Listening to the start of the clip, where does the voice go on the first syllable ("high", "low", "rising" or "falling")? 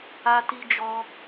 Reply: high